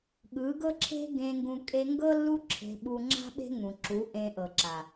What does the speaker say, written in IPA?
ɠ ɯ˨˦ ɡ ɤ˦ ǁʰ e̤˦ ɡ ẽ˧ ŋ ɡ ũ˧ kʼ e˧ ŋ ɡ ɤ˦ lː u˦ ǁʰ e̤˧ ɓ u˧ ŋ͡ǁ a̤˦ ɓ e̤˦ ŋ ũ˨ ǁ u˨˦ ʔ ẽ˧ ʔ ɤ˨ ǁ a˨

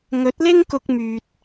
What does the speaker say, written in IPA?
ŋ ɵ˨˥ t̚ l ɪ˥ ŋ k ʊ˧ k̚ m yː˨ t̚

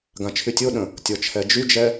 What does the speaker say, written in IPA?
ɡ ã t͡ʃʰ y tʲ o ɗ ə̃ | tʲ ɔ t͡ʃʰ ɛ d͡ʒ y d͡ʒ ɛ

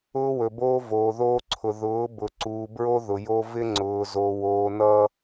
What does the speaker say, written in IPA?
ʊː˦ w ɵ˨ b oː˦ v oː˨ ð oː˦ ǀʰ ʊ˨ ð ʊː˨˦ b ʊ˨ ǀ uː˨ b ɹ o˦ ð ʊ˨ j o˦ v ɪ˦ ŋ͡ǀ ʊː˨ z o˨ w oː˨ n ʌ˦

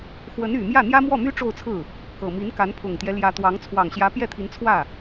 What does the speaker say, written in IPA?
x w ə˧˥ n y˨˩ m j ä˥˩ n̪ j ä˥ m w ɔ˥˩ m y˥ ʈ͡ʂ o˥˧ ʊ̯ t͡sʰ ɹ̩˥˩ | k ɤ˨˩ m i˧˥ n k a˧˥ n pʰ ʊ˨˩ ŋ t̪ j ɛ˦ l j ä˧˥ t̪ w ɑ˧˥ ŋ t͡sʰ w ɑ˨˩ ŋ ɕ j ä˧˥ p j ɛ˥˩ t̪ʰ i˧˥ n t͡sʰ w ä˥˩

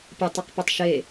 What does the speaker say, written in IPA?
pʲ ə tˤ e q p i tˤ ʃ e

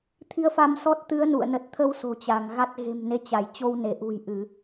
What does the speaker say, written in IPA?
t̪ʰ i˧ ə̯ f a˧ m s ɔ˦˥ t̚ t̪ ɨ˨˦ ə̯ n ṵ˧˨ ə̯ n ə˨˩ t̚ t̪ʰ ə˧ w s o̤˨˩ t͡ɕ a˧˩ ŋ ɣ a˦˥ t̚ ɣ e̤˨˩ m n e˨˦ t͡ɕ a˧˩ j t͡ɕ o˧ w n e˧˩ ʔ ṳ˨˩ j ʔ ɨ˧˩˨

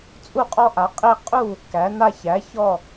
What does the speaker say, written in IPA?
t͡sʼ u˦ qʼ ɔ˦ ʔ a˩˥ qʼ i˥˩ qʼ u˥˩ | k æ˩˥ n a˦ ç æ˩˥ ç ɔ˥˩

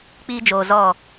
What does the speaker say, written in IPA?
k͡p iː˦ d͡ʒ oː˨ z ɔ˦˨

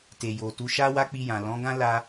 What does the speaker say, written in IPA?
t e˨ j o˨ t u˨˦ ʃ a˦ w a˦ k͡p i˧ j ã˨ l ɔ̃˨˦ ɡ ã˦ l a˧

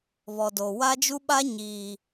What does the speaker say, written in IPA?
β ɔ˨ d o˨ w a˦ d͡ʒ u˦ ɓ a˦ ɲ iː˨

